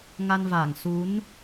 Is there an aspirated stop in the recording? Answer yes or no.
no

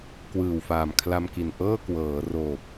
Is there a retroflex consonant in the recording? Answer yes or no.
no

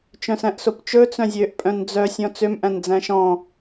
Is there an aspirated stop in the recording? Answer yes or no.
no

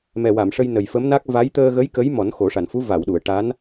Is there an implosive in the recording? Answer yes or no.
yes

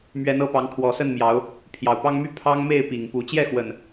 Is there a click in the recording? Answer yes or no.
no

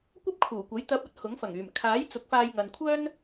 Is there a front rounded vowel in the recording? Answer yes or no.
yes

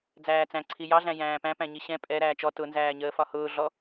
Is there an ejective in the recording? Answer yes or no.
yes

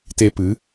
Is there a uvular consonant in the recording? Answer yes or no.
no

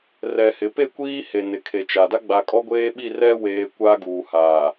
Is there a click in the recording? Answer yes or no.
no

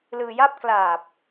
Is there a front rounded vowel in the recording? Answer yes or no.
no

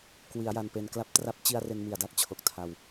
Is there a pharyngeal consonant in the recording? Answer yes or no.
no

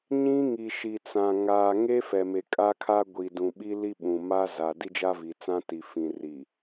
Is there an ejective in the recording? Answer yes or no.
yes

